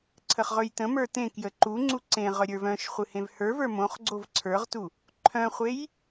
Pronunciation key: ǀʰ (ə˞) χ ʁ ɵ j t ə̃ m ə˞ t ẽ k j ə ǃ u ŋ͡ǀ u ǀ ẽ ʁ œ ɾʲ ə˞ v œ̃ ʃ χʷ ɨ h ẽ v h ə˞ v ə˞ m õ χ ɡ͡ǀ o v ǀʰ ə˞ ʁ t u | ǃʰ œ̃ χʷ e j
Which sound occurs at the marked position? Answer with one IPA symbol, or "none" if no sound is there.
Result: ə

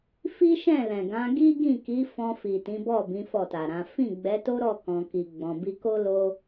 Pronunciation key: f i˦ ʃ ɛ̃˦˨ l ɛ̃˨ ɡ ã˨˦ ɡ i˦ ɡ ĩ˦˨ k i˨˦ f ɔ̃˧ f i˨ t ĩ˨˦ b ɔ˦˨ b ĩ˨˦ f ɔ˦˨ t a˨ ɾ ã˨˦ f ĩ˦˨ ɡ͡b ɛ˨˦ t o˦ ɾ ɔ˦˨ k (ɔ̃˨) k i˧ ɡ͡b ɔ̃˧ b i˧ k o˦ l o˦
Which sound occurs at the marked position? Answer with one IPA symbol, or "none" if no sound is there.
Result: ɔ̃˧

